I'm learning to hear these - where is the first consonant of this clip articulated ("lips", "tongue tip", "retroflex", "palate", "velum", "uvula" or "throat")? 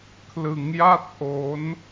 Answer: velum